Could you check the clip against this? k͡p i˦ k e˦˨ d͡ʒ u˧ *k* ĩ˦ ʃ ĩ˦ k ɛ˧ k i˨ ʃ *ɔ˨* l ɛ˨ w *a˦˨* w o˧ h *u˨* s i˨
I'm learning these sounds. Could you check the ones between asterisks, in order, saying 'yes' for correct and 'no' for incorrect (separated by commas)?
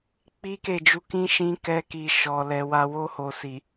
yes, yes, no, no